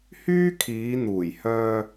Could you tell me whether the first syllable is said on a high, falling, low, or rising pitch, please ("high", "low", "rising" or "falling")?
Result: high